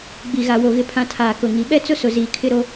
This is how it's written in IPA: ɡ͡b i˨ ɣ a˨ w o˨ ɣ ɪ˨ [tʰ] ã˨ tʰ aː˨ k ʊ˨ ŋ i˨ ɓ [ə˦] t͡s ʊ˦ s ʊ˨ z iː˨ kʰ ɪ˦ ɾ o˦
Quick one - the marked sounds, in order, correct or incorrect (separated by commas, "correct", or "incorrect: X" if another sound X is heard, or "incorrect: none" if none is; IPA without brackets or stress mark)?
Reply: incorrect: pʰ, incorrect: ɛ˦